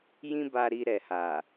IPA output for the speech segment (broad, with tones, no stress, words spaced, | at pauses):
jĩ˦ba˧ɾi˧ ɾɛ˨ha˨